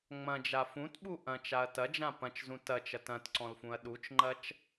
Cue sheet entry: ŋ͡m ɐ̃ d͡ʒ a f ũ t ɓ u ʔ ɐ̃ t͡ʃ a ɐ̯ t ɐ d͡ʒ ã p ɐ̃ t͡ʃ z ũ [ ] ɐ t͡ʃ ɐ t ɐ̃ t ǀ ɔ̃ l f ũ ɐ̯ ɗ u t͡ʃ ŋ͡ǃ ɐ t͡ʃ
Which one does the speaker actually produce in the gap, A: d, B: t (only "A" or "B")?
B